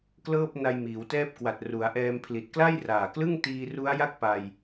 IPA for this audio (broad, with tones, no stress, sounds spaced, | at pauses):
k l ɤː˥˩ p̚ n a˧ j m iː˩˦ w t ɛː˥˩ p̚ k w a˨˩ t̚ r u˩˦ a̯ ʔ ɛː˧ m pʰ l i˨˩ t̚ k l a˥˩ j r aː˨˩ k l ɯ˥˩ ŋ t iː˧ r u˦˥ a̯ j a˥˩ k̚ p a˧ j